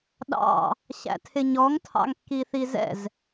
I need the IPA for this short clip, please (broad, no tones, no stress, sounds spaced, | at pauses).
ɗ ɑ̰ | ɕ æ̰ tʰ ɪ ɲ ɔ ŋ tʰ ɑ̰ ŋ kː i θ i z ɛ̰ z